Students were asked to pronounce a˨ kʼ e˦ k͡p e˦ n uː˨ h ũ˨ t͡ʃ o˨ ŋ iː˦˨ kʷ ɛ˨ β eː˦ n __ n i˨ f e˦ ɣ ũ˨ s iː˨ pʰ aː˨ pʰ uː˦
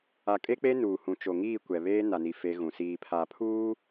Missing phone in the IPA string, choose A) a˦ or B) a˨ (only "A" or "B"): B